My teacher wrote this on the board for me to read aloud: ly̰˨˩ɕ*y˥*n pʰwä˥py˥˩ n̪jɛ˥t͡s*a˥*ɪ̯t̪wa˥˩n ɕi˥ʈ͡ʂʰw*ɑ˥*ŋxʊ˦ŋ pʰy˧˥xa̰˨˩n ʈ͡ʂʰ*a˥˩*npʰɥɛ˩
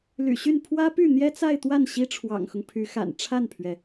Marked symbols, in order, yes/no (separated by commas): no, no, no, yes